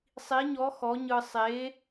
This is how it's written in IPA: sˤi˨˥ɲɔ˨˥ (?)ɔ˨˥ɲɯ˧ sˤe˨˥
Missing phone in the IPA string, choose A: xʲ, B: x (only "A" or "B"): B